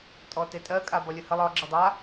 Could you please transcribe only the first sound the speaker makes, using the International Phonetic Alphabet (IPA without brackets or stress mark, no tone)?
tʼ